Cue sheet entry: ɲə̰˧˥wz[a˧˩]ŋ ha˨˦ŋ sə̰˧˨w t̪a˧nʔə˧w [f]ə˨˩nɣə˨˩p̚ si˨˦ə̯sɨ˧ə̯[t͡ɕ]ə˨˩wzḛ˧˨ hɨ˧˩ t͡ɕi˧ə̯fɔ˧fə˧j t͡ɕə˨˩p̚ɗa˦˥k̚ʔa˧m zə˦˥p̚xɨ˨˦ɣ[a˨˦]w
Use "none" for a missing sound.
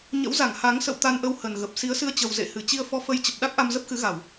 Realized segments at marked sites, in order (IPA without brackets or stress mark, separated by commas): a˧˩, h, t͡ɕ, a˧˩˨